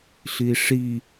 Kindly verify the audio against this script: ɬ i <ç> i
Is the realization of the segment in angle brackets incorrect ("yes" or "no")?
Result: yes